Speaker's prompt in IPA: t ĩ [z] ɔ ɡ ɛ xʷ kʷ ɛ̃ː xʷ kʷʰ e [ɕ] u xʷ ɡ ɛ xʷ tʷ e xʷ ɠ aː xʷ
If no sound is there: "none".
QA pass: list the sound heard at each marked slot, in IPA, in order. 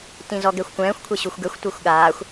z, ɕ

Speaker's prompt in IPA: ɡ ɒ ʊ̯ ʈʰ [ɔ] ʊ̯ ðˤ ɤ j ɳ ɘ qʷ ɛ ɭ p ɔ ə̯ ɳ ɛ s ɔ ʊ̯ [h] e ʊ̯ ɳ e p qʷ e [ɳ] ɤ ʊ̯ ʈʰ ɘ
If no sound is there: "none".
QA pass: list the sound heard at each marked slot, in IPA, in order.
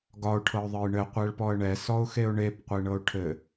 ɤ, x, ɳ

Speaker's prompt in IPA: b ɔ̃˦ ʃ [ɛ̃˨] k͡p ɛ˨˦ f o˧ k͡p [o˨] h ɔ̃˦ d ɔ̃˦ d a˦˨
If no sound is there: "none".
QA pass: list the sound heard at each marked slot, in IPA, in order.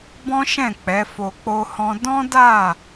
ɛ̃˦˨, o˦

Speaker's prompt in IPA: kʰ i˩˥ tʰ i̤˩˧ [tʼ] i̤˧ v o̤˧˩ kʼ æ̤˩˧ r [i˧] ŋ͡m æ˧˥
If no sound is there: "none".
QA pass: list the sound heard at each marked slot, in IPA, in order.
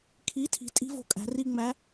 tʼ, i˧

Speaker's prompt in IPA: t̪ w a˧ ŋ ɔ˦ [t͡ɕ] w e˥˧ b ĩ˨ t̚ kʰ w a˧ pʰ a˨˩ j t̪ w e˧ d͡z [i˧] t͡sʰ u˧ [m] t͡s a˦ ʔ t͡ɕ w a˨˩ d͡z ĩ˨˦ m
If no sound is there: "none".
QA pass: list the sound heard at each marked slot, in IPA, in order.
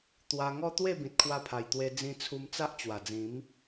t̪, ĩ˧, m

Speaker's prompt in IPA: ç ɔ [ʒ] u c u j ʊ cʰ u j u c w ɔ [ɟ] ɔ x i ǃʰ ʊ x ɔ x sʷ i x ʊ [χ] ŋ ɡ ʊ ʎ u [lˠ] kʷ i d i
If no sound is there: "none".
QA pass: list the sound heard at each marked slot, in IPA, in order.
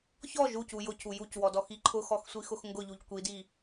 ʒ, d, x, ʎ

